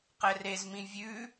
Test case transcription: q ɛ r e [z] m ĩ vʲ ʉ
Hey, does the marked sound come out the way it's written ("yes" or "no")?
yes